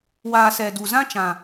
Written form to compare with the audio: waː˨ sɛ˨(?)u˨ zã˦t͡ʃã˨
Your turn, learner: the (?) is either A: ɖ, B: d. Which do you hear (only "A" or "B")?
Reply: B